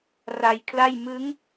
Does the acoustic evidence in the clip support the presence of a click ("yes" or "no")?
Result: no